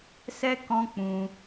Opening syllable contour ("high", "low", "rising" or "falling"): high